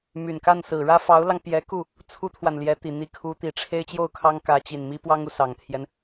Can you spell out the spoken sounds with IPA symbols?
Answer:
my˨˩nka˥˩n sɹ̩˨˩ɻä˥fɑ˧˥ʊ̯lɑ˧ŋ pjɛ˧˥ku˥˩ | t͡sʰu˥t̪ʰwa˨nljɛ˧˥t̪i˨˩ n̪i˧˥kʰu˧˥t̪i˨˩ ʈ͡ʂʰe˥ɪ̯t͡ɕjo˥˩ʊ̯kʰɑ˥ŋkä˧˥ t͡ɕi˨˩nmi˥ pwɑ˥ŋu˨sɑ˨˩ŋt̪ʰjɛ˦n

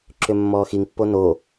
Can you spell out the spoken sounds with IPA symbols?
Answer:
ǁʏmːɔːxiŋpːo no

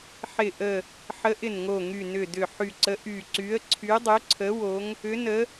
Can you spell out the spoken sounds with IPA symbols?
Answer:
ħɪ˨˩ʔə˨˩ | ħə˨˦ʔɪ˨˩nŋo˨˩ŋy˨˩ nʏ˨˩dʏ˨˩ ħy˨˩ǀə˨˦ ʔy˨˩ǀy˨˦ə̯ ǀʰy˨˦dˤʏ˨˦ǀʰə˨˦ wo˨˦ŋ | ʏ˨˦nə˨˦

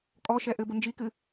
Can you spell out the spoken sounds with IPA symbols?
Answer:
kʼɔʃɛ ʔɘbʊ nd͡ʒikɨ

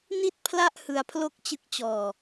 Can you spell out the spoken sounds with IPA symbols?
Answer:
ni˥˩t̚pʰla˥˩ʔ hɯ˦˥a̯pʰlo˥˩k̚t͡ɕɯ˦˥k̚ t͡ɕɔː˧

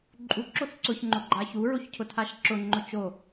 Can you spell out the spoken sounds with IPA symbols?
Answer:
ǃʼu ǁoθǀʊç ŋ͡ǃʊɡ͡ǃaçu ɹoçcʰʊtʰaʃǁʊ ŋ͡ǃʊt͡ʃo

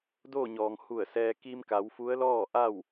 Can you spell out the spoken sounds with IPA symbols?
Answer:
doː˥˨ɲɔː˩ŋ hu˧˩ə̯sɛː˧ ki˧mka˩˧w fu˧˥ə̯lɔː˥˨ʔa˥˨w

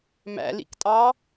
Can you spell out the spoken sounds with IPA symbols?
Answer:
mæ̰lḭktʼɑ

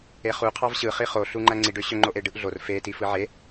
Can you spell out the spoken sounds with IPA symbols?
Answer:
eχu qʰɑvɕɯχi χoɬuŋ͡ǃæ ŋ͡ǀiɖø ɕøŋ͡ǃoʔe ɖɯʔɮor fe tifɯʕe

